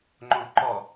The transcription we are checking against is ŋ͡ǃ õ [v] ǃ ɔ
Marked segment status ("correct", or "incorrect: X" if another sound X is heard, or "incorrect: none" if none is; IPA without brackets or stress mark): correct